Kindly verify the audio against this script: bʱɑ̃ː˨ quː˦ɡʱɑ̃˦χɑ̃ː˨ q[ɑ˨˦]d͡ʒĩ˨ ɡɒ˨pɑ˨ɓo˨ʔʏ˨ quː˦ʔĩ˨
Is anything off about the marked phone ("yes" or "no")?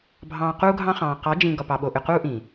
no